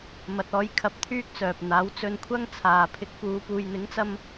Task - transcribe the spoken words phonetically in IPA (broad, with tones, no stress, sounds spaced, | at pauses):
m ɐ˧ t̚ ɔː˥ j kʰ ɐ˧ p̚ t̪ʰ yː˥ k̚ t͡s œː˨ p̚ n̪ aː˨˥ w t͡s ɵ˧ n kʷʰ ɐ˥ ŋ t͡sʰ aː˨ pʰ ɪ˧ k̚ p uː˨˧ p uː˨ j n̪ ɪ˨˥ ŋ t͡s ɐ˧ m